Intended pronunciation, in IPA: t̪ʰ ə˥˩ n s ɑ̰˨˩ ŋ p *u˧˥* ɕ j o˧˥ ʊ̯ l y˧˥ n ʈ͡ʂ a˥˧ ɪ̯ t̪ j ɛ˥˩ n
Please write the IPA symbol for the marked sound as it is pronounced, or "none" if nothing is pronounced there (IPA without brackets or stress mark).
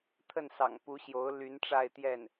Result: u˧˥